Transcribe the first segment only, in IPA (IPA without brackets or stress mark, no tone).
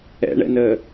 ɛ̰